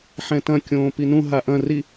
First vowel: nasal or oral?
nasal